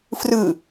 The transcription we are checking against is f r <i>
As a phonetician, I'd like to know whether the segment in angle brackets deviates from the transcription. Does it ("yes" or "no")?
yes